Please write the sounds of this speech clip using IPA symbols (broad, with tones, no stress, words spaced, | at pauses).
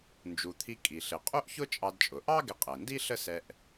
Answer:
nd͡ʒu˩t̪ʰi˧ kʼi˩ɬɪ˩ qʼu˥ʔçʊ˥t͡ʃʼɑ˧dt͡ʃʼʊ˩ ʔɑ˥ ɡɪ˧qʼɛ˩ndi˥ ɬə˥ sɛ˧ʔ